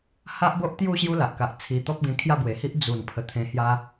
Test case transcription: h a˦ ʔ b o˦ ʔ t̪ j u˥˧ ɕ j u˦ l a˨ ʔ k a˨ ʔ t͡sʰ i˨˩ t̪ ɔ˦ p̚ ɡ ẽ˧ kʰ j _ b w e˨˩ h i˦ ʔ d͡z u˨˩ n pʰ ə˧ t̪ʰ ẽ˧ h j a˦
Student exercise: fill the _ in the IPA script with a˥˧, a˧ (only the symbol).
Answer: a˥˧